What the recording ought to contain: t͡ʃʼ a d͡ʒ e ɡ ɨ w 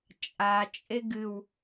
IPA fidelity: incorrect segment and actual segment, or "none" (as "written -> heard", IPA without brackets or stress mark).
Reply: d͡ʒ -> t͡ʃʼ